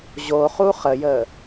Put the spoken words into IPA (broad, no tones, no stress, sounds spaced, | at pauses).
ʑ o χ u χ ə j ə